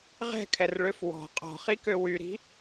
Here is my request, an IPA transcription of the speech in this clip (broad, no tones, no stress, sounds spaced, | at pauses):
ʁ ɛ̤ kʰ ɛ r ɭ ø f w ɔ̤ qʼ ɔ̤ χ i k ø w y ɾ i̤